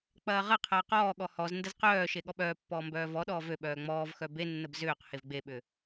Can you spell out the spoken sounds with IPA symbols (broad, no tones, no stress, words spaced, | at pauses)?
k͡pɐːʁɐqʰɐː qɔːɠɔ hɔzndəz qœːʃe ɠɔɓœːpːɔː mbœːvɔɗɔː vøɓœː ŋ͡mɔːvxœ benːəb zʏːq hevɡ͡beɓʏ